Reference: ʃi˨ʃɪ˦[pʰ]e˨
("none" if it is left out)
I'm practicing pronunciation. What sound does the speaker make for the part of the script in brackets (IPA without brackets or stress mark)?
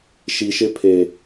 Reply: pʰ